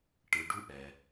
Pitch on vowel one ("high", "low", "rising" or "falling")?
low